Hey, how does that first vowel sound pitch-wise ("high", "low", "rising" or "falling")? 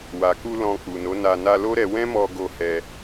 low